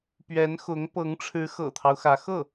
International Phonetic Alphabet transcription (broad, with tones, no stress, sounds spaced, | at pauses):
p ɥ ɛ˧˥ n x ʊ˧˥ ŋ p ɤ˧˥ ŋ ʈ͡ʂʰ ɻ̩˧˥ x ɤ̰˨˩ t̪ʰ ɑ˦ ʊ̯ x ä˧˥ x ɤ˥˩